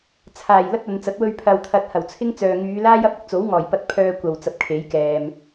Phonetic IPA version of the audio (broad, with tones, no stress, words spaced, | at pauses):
t͡sʰaː˨˩j lɐ˥t̚ɐ˨˧nt͡sɐ˨˥t̚ wɵ˧ɥpʰɐ˨wt̪ʰɐ˨˥t̚hɐ˨˩w t͡sʰɪ˥ŋt͡sœː˨ ŋyː˨˧laː˥jɐ˥p̚ ɪ˧k̚t͡so˨˥wŋɔː˨˩jpɐ˧t̚ pʰœː˧ kʷɐ˨w t͡sɐ˨p̚kʰe˨˥jkɛː˨m